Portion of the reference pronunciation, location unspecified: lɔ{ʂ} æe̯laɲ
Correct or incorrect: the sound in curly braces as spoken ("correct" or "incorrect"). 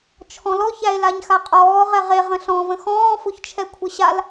incorrect